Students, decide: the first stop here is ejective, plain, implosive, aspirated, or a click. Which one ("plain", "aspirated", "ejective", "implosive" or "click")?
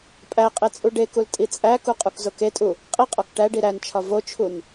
ejective